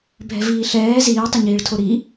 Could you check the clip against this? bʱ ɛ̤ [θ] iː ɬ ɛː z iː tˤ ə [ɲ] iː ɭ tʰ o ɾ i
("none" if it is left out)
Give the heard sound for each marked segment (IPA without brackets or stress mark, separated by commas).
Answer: v, ɲ